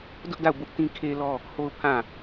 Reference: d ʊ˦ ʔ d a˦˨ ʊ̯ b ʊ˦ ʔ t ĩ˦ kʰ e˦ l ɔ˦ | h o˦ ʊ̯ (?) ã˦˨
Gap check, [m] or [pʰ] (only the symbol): pʰ